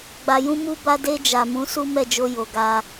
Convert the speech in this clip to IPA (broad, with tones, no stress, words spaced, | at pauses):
ɡ͡ba˨jũ˧ mu˧ba˧de˧ d͡ʒa˨mũ˨˦ su˦mɛ˦˨d͡ʒo˧ jo˨ɡa˧